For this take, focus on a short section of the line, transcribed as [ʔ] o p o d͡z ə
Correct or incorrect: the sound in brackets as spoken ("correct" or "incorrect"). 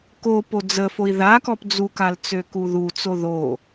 incorrect